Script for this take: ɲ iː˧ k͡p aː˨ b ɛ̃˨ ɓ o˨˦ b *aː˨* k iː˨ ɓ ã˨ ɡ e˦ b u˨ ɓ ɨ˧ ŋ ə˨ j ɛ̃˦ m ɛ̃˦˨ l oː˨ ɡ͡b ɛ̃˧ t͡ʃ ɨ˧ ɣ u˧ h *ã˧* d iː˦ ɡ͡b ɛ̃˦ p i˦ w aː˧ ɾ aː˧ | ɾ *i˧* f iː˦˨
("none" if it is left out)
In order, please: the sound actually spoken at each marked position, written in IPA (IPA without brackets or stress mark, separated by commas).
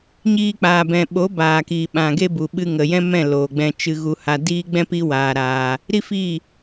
aː˨, a˧, i˦